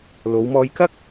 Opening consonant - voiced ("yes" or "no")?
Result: yes